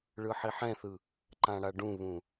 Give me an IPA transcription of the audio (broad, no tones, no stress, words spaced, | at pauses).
ɭɯħiħɛ̃θɯ | ǃãɽaɖũβũ